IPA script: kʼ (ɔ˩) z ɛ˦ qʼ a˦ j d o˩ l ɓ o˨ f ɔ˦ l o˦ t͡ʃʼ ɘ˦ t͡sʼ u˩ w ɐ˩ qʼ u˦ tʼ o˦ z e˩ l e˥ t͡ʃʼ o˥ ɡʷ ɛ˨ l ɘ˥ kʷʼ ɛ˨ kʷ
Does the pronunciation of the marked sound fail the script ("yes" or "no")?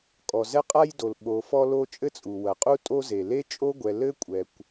no